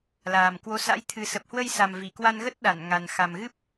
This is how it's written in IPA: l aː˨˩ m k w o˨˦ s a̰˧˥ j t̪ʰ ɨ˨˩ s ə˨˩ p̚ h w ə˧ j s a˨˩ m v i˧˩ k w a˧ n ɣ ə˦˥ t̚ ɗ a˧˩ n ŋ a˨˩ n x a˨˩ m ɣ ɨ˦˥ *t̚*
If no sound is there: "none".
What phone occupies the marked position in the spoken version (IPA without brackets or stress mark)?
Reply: p̚